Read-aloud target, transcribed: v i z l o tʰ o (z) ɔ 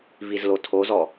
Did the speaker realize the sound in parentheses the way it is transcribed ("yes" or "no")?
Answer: yes